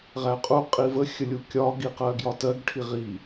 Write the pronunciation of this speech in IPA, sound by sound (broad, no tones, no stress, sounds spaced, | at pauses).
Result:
ʁ æ qʼ u qʼ i v ə xʲ ə lʲ u kʲ ɒ ɡ i q ɜ ɡ j ɒ t ɜ ɡ ʈʰ i ʁ i